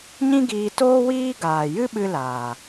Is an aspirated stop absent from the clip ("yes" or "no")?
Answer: yes